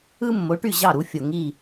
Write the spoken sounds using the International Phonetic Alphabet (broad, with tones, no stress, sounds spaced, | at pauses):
ɯ˥ mː o˩˥ ʈ y˥˩ ʑ ɑ˥˩ ɾ u˩˥ fʲ o˩ ŋ i˥˩